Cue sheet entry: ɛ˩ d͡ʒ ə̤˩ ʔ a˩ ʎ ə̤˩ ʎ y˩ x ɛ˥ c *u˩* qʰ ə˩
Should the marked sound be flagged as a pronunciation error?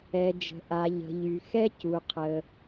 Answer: no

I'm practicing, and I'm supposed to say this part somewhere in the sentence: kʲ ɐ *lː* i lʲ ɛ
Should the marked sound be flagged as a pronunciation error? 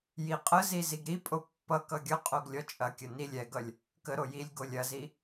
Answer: yes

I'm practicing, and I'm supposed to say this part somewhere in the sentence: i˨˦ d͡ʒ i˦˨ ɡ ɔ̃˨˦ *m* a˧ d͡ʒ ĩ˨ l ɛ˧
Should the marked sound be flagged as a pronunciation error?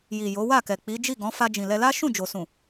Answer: yes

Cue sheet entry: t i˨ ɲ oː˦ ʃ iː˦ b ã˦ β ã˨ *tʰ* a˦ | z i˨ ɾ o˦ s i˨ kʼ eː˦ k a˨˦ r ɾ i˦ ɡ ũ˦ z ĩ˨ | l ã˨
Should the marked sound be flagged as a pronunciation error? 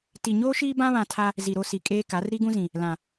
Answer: no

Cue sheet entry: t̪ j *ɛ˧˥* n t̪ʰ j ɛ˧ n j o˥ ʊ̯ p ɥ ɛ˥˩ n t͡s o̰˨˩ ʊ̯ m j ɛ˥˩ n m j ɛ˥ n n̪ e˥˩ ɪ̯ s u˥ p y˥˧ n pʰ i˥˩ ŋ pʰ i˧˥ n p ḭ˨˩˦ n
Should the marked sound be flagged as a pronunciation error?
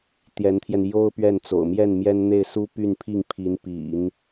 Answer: no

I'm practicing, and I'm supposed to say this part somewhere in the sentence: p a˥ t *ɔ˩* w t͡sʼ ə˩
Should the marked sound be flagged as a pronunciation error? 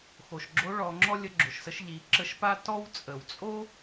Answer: yes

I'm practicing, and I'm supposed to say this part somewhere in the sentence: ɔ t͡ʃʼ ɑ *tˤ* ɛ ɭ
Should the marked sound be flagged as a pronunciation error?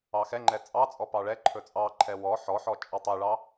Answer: no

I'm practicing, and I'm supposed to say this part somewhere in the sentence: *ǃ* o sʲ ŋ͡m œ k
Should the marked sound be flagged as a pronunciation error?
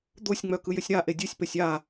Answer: yes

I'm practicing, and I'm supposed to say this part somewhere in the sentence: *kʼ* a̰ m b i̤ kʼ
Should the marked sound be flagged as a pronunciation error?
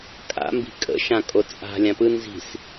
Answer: no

